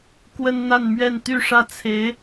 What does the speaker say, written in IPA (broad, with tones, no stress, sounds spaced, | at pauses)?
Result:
k w ə˥ n n̪ a˥˧ n m ɥ ɛ˥˧ n t̪ y˥˧ ʂ ä˥˩ t͡sʰ e˧˥ ɪ̯